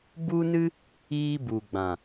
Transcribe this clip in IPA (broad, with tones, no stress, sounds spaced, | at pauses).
b u˦ n ɨ˦ | iː˦ b u˨ ɡ͡b ã˨